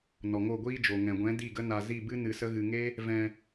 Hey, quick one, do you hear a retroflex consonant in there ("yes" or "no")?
no